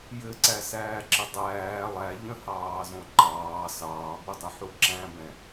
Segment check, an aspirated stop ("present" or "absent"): absent